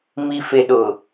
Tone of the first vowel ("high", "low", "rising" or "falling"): low